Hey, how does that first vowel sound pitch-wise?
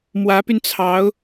rising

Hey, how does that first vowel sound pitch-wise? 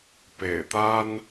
low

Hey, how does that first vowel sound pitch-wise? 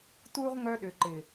high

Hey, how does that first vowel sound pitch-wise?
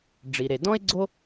low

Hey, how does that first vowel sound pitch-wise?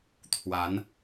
rising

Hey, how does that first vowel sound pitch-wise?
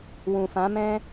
low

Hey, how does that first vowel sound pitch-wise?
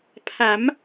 rising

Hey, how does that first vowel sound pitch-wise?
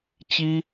high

